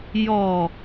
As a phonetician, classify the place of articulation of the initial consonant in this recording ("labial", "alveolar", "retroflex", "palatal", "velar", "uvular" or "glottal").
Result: palatal